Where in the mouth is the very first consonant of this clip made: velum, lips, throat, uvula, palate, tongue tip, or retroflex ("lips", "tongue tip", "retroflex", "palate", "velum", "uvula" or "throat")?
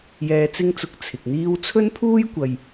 palate